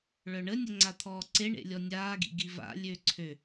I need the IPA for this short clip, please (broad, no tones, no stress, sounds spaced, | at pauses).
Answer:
ɭ œ ɳ ə nʲ ə ŋ͡ǀ a t̪ʰ ɔː ǀ e ɳ ḛ lʲ ɔ nʲ aː ɡ ḭ ɡ i v a̰ lʲ ø ǀʰ ø